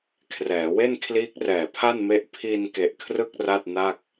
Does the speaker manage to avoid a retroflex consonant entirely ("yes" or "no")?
yes